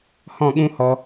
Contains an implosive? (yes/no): yes